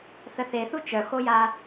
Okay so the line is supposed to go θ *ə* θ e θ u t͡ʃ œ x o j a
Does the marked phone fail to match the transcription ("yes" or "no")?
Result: no